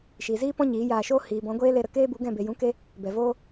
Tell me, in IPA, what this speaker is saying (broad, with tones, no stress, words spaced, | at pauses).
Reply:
ʃiː˨ziː˦ pɔ̃˦ɲiː˨˦jaː˧ʃoː˦ hiː˨bɔ̃˨˦ɡʷeː˦ le˧ɾə˧ keː˦bu˨˦ɡɛ̃˦˨ be˨jũ˨˦ ke˦ | bɛ˨voː˦